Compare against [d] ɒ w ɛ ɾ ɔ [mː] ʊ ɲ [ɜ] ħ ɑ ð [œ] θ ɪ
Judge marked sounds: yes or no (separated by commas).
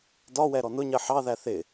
yes, no, yes, no